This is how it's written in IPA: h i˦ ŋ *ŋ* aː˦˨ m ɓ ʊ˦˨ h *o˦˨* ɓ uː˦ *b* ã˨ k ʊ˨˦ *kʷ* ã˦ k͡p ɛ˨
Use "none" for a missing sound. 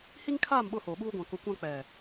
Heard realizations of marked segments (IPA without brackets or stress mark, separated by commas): kʰ, o˨, ɡʷ, kʷ